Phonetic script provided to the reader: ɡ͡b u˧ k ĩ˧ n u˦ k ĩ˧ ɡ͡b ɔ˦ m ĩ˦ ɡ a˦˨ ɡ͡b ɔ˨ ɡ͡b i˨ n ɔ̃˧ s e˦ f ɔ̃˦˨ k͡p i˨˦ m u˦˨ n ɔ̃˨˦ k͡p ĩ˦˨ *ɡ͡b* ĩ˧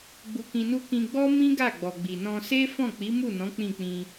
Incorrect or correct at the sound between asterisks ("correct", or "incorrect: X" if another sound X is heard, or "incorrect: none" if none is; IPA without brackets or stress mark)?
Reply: incorrect: k͡p